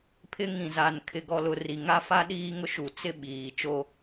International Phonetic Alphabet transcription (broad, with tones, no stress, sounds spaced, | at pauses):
pʰ ɪ˦ ŋ ĩ˨ z a˨ n kʰ ɪ˨ ɡ ɔ˨ l ʊ˨ r i˨ ŋ a˦ f a˦ ɗ iː˦ ŋ ʊ˦ ʃ u˨ t͡s ɪ˦ ɓ iː˨ t͡ʃ o˦